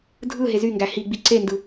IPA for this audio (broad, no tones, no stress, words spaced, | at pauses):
dʱɯ ɦezyŋɡæ hiɡ͡bi ǀendɯ